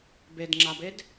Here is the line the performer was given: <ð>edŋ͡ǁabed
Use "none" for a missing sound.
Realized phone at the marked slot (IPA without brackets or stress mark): b